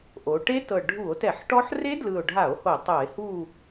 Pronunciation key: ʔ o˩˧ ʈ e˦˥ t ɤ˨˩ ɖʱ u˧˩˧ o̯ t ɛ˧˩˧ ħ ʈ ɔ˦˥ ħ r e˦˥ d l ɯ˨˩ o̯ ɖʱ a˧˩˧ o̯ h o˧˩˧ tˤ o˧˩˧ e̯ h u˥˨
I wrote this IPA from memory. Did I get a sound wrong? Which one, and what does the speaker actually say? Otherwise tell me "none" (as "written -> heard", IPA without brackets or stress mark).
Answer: none